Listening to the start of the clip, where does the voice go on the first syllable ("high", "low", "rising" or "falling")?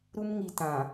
high